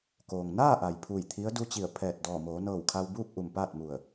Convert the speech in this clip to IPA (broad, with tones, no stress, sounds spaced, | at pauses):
k oː˩ ŋ n aː˥˨ ʔ a˩ j pʰ u˧˩ j t̪ʰ i˧˥ ə̯ d u˧˥ t͡ɕ i˧˩ ə̯ pʰ ɛː˧˩ t̚ d ɔː˧˩ m oː˩˧ n ɤː˧˩ w kʰ a˧ w b uː˥˨ k̚ ʔ u˧˩ m p aː˥˨ t̚ m u˧˩ ə̯